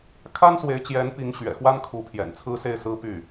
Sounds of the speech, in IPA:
kʰa˥nswe˧˥ɪ̯t͡ɕjɛ˧˥n pi˧˥ŋ ɕɥɛ̰˨˩ xwa˥n kʰu˧˥pʰjɛ̰˨˩n t͡sʰɹ̩˥se˥˩ɪ̯sɹ̩˥ py˥˩

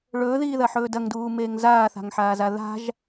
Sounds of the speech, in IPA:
ɭɵːðiːðɐħɵː dɐŋduːmeːŋ zaːθa̤ŋħaːza ða̤ʒ

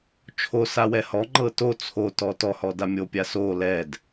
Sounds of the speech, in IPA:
t͡ʃʰo sawɛhɔŋ͡ǃɤ to t͡sʰotɔ tɔhɔ damʲopʲa so lɛd

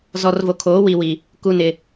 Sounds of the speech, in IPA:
zɔ˨rvo˨kʰoː˨˦ wi˨wi˨ | ku˨nɪ˨

